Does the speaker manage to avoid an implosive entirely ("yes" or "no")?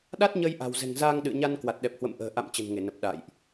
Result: no